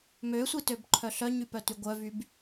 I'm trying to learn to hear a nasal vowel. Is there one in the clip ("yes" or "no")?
no